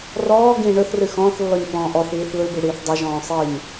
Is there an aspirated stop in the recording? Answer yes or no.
no